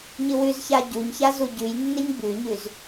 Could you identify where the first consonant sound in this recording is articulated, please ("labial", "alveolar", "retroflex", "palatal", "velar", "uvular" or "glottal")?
palatal